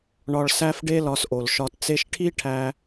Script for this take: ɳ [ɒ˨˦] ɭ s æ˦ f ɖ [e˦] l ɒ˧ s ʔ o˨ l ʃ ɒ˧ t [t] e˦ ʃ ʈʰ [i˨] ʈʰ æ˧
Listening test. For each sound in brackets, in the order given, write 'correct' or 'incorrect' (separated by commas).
incorrect, correct, incorrect, incorrect